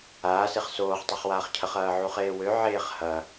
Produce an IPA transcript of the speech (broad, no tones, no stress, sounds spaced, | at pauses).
aː s e χ s oː χ tˤ e χ w aː χ cʰ ə χ ɐː ʕ u χ eː w ø ʕ eː χ h ɐ